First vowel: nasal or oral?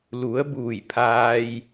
oral